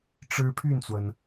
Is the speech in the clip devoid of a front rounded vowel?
no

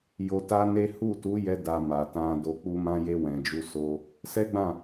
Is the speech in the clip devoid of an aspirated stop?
yes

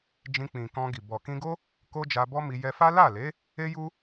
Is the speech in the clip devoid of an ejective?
yes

